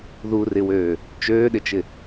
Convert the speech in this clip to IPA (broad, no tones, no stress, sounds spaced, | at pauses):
ð u r ɪ w øː | t͡ʃ øː ɗ ɪ t͡ʃ ɪ